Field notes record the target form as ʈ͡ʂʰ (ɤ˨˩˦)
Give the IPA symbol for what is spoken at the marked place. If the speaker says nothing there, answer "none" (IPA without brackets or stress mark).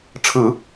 ɯ˨˩˦